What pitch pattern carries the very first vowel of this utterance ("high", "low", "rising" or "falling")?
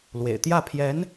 low